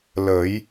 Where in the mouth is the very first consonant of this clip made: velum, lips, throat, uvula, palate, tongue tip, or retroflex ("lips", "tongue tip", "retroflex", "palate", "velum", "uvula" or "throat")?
tongue tip